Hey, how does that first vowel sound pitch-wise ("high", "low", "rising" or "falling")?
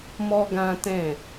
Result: high